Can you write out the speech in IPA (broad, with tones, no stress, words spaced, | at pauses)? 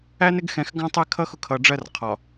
æ˦nɪ˦ɡxɛ̃˨x ɡɑ̃˦tˤæ˦kʰʌ˦ xʊ˦kʰʌ˨ɖ͡ʐɜ˦r qʰɒ˨